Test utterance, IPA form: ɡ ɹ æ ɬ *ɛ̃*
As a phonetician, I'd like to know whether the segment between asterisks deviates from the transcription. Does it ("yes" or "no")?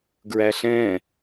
no